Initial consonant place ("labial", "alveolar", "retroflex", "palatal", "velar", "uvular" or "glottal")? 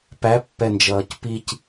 labial